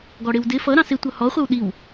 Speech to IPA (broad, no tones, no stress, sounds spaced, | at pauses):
ɡ ɔ ɽ ɪ w d ɪ f ʌ ɾ ɑ̃ s ɪ tʷ ʌ h ɔ χʷ ɪ w ɗ i w